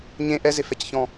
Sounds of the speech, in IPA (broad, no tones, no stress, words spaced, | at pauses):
ɲẽ ʔɛzefɛcçɔ̃